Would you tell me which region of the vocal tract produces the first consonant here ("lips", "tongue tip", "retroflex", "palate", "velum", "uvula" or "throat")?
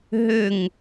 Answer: throat